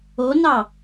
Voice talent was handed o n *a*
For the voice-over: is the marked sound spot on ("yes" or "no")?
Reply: no